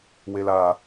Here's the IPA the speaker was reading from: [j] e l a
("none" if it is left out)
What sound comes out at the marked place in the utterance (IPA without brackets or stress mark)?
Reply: w